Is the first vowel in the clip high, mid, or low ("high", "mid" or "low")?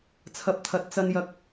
low